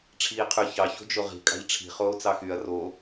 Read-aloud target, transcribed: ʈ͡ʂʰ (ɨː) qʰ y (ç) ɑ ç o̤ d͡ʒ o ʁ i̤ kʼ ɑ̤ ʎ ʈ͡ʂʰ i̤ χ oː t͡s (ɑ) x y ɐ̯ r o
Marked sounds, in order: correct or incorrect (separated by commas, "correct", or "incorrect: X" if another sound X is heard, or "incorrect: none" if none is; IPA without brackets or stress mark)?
incorrect: iː, correct, correct